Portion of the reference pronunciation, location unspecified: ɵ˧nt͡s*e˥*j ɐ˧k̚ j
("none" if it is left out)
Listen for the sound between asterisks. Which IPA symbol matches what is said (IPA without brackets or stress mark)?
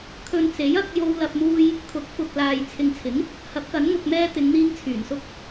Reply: e˨˥